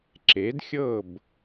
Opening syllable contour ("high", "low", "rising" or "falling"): rising